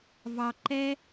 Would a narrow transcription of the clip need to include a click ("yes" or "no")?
yes